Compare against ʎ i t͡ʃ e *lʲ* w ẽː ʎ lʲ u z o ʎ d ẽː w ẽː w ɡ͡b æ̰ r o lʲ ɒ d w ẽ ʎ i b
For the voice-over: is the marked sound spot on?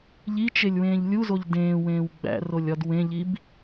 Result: yes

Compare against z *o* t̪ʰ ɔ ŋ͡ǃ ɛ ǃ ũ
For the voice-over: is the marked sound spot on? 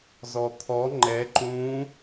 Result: no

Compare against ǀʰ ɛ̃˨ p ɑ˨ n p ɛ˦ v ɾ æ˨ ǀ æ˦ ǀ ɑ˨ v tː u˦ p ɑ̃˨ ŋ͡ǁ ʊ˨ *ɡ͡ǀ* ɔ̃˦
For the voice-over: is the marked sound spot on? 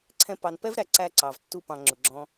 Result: no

